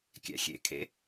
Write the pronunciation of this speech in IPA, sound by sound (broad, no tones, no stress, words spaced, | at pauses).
kʲæ̰xʲḛkʰḛ